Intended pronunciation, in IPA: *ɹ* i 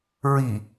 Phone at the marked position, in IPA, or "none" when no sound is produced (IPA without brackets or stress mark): ɹ